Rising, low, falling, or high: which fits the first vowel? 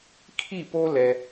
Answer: falling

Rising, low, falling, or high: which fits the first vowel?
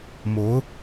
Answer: rising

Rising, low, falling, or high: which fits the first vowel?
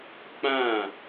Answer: falling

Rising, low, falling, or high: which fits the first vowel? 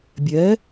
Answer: rising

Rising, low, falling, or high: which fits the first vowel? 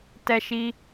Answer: high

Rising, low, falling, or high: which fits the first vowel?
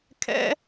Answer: rising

